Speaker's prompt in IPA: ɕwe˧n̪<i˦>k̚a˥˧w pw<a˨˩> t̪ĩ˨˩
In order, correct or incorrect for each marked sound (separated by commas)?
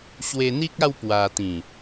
correct, incorrect